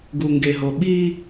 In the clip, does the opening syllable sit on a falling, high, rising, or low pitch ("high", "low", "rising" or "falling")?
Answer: low